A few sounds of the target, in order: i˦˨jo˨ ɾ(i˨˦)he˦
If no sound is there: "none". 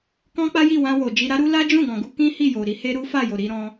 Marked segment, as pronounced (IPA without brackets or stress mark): i˨˦